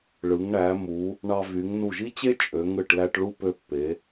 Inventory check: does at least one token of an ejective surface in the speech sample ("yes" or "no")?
yes